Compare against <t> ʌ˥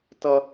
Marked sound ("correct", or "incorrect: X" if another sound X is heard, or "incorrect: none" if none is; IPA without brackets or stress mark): correct